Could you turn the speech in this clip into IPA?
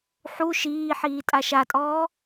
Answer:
ħu ʃiːħiː tʼaʃatʼɔː

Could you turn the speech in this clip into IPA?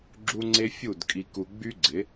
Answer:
ɡ͡ǁu˦ŋ͡ǀe˦fʲu˦˨d kʼi˧ku˧ɡ͡by˦ɡ͡ǀɪ˨˦

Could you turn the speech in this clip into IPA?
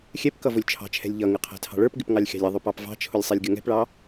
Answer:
xʲɛpkʌ vʊlʲt͡ʃʰɑ̤t͡ʃʰɛ̤lʲ ʎʌŋɪ qʰɛ̤tʰɑ̤ɭə˞pɡɪp ŋɑlʲxʲɑ̤lʲɪðˤʊ pɑpvɑ̤t͡ʃʰʊlʲ sˤɛlʲɡʲʌŋɛ̤pɭɑ

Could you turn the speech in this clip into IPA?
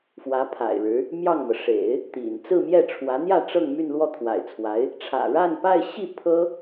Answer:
fwä˧˥ pʰa̰˨˩ɪ̯ɻɻ̩˧˥ | mjɑ˥˩ŋmɤ˩ ʂḛ˨˩˦ɪ̯ | t̪ḭ˨˩n t͡sɹ̩˥˧mjɛ˥˩ʈ͡ʂʰwä˧˥n̪jä˥˧ ʈ͡ʂɤ˥˧ŋmy˥˧n lwɔ˥˩t̪ʰwa̰˨˩ɪ̯t͡sʰwa˧˥ɪ̯ | ʈ͡ʂʰä̰˨˩ɻa˥˧npa˥˧ɪ̯ɕi˥˩ pʰɤ˥

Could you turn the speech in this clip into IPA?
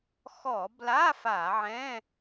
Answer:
xɔ˧˩˧bla˧˥˧ fa˧˩˧ʕɛ̃˧˥˧

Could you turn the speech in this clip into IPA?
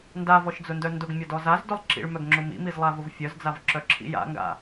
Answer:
ndavɔʃd͡zʊndœ ndʊɡmʲɔdɔ zazdʊlˠ ǁḭɭmœɡŋ͡ǁʊ mḭmizlˠavʊv fʲœzd͡zavǁœǁʰḭ ja̰ŋɡa̰

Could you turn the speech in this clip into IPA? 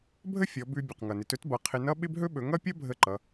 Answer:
bʱə˥ fʲɔ˩˧bʉ˧ bʲʌ˩qŋʌ˩ nɪ˩˧tɵ˥tbʌ˩˧ qʰɪ˧nʌ˥ ɓɪ˥bɦɵ˥ ɓɵ˩˧ŋʌ˥pʲʌ˥ bʱə˧ ǃʌ˩˧

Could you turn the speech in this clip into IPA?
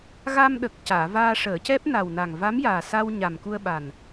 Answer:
ɣa˧mɗə˨˩k̚ caː˨˩˨vaː˧ʂəː˨˩˦cɛ˦˥p̚ na˨˩wna˨˩ŋ va˧˥mjaː˨˩sa˧w ɲa˨˩mku˧ə̯ ɓa˨˩n

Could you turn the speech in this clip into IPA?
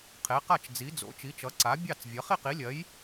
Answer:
qʰe˨˥qa˥˨t͡ʃd͡zi˨˥ d͡zo̰˨˥t͡ʃi˨˥t͡ʃʌ˨˥ ǀa˨˥ bʲɑ˥˨t͡svʲʌ˨˥ χi˥˨qi˨˥lʲɜ˨˥j

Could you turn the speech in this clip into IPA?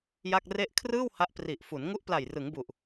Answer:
ja˥˩k̚ re˥˩ʔ kʰrɯː˥˩w ha˦˥ʔ pri˨˩ʔfu˩˦n ŋu˦˥ʔpla˨˩jrɯ˩˦ŋbu˨˩ʔ

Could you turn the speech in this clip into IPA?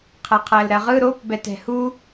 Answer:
qʰɛqʰɜlɾɜʁɯ ɾop bɛtɛ̤hu

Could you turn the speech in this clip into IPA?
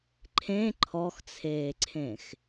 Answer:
ǃʰẽ ǃʰɔxt͡sʰeːǀʰẽx

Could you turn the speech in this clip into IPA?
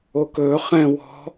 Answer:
okɵ χɛ̃ wɔ̤

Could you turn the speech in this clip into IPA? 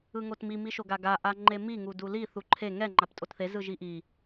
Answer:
ɯŋotmi miʃoɡaɡa ʔaŋ͡ǃemi ŋuduli θuǃʰe ŋɛ ŋ͡ǃaptʼotθe zɯʒiʔi

